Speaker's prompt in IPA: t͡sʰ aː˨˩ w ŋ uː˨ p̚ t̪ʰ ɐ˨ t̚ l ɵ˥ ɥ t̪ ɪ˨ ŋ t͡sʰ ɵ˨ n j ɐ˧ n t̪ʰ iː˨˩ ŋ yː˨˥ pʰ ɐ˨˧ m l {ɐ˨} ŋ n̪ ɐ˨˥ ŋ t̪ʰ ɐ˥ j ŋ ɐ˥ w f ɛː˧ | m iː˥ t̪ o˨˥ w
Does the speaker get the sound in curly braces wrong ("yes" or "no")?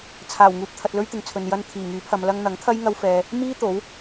yes